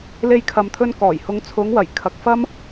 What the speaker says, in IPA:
l e˧ j kʰ ɐ˨ m t̪ʰ ɵ˧ n k ɔː˨˩ j h ʊ˨˧ ŋ t͡sʰ ʊ˨˧ ŋ w ɐ˨˩ j kʰ ɐ˨ k̚ f ɐ˥ m

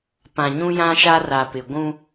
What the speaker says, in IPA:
p ã˨ ɲ ũ˦ j ã˦ ʃ a˦ r a˨ p ɪ˨ ɡʷ ũ˦

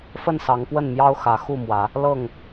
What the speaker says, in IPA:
f ə˥˨ n s ɑ˨˦ ŋ p w ə˥˨ n m j ɑ˦ ʊ̯ x ä˨˦ x u˥˨ m w ä˨˦ | l ɤ˥˨ ŋ

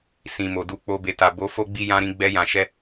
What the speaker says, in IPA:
s ĩ˨ m o˨ d u˧ k͡p o˧ b e˨ t a˨ b o˨˦ f o˦ ɡ͡b i˦ j ã˦ ɾ ĩ˦ ɡ͡b ɛ˦ j ã˧ ʃ ɛ˦

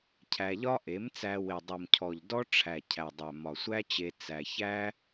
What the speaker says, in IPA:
cʰ æ˧ ʎ ɒ˦ ʔ e˨˦ m t͡s æ˧ w e˨ dˤ u˨ m cʰ ɔ˨ ʎ d ɔ˦ ʈ͡ʂʰ æ˨ cʰ æ˨ dˤ æ˨ m ɒ˨ sʷ æ˦ t͡ɕ e˧ t͡s æ˧ ç æ˦

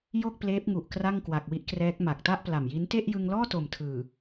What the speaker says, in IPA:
j o˥˩ k̚ p l eː˦˥ p̚ ŋ u˨˩ ʔ k r a˥˩ ŋ k w a˨˩ k̚ w i˦˥ ʔ k r ɛː˦˥ k̚ m a˨˩ k̚ t a˥˩ ʔ p l a˨˩ m j i˦˥ n t e˥˩ ʔ j ɯ˧ ŋ l ɔː˥˩ t o˨˩ m tʰ ɯː˨˩

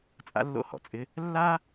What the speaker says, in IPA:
t͡sʼ a̰˧ lː o̰˧ h ɔ̰˩ t͡sʼ ɪ˧ | lː a˥

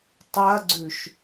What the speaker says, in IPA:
tˤ ɐ ɡ͡ǀ ʉ ʃ

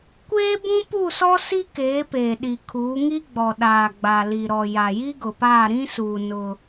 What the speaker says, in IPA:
kʷ eː˦ b ũ˦ p u˦˨ s ɔ˦ s i˦ k eː˨˦ p eː˨ ɗ i˨ kʰ uː˨˦ ŋ i˦ ɡ͡b ɔ˨ ɗ aː˨ ɡ͡b a˨ l i˨ ɾ ɔ˨ j a˨ j i˦ ɡ ʊ˨ p aː˦˨ ɾ ĩ˦ s uː˨ n ʊ˦

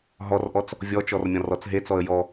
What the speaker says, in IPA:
ɦ ɔ r ʔ ɔ t͡s | vʲ ɔ t͡ʃ ɔ r mʲ ɔ̃ r ɔ t͡s ɦ e t͡s ɔ ə̯ j ɔ

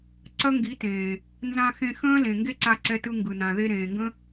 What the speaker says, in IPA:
ǀ ɐ˦ ŋ ɡ i˨˦ t ẽː˨ | n z ã˧ x ẽ˧ x ə̃ː˦ l ẽ˨ ŋ ɡ e˦ ǀ a˧ ǀ ɛ˧ t ɯ˧ ŋ ɡ ɯ˨ n ã˨ ð e˧ ɾ ẽː˨ ŋ ɡ ə̃˦

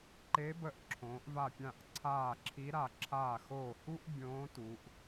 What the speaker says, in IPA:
ǃ e˧˥ b ə˧˩ ʔ ǁʰ õː˩˧ ʔ v a˧˩ pʲ ã˧˩ ʔ ǀʰ aː˧˩ ǁʰ i˧˥ ɾ a˧˩ ǁʰ aː˧˩ x oː˧˩ h u˥ ʔ bʲ õː˧˥ t u˩˧ ʔ

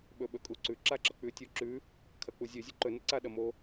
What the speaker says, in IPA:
ɓ ɵ ɓ ɵ kʼ u ǀ ʉ ǁ a ǁ ɐ k͡p ʉ tʲ u ǁ ʉ | kʰ ɐ k͡p u zʲ ʉ zʲ ɵ ǃ ɵ n ɐ ǀ a ɗ ɐ m o

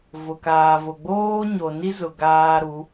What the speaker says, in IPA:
v ʊ˨ k aː˨ v ʊ˨ ɡ͡b oː˦ ɲ o˨ n i˦ z ʊ˨ ɡ aː˦ ɾ u˨˦

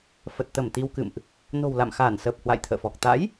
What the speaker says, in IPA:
f ə˨˩ t̚ t̪ ə˧˩ m t̪ i˧ w k ɨ̰˧˨ m ʔ | n o̤˨˩ w l a̰˧˨ m x aː˧˩ n s əː˨˩ p̚ h w a̰˧˨ j t̪ʰ ə̰ː˧˨ f ɔ˨˩ k̚ t̪ a̰˧˥ j

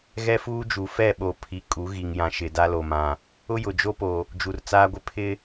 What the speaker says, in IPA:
ɣ ɛ˦ f uː˦ d͡ʒ u˨ f ɛ˦˨ ɓ o˨ pʰ i˨ kʼ u˨˦ ɣ i˨ ŋ j ã˨ ʃ ɪ˨ d a˦ l o˨ m ã˨ | ʊ˦ j ʊ˨ d͡ʒ o˦ p o˨ | d͡ʒ u˨ r t͡s aː˦ ɡʷ ɪ˦ pʰ ɪ˦

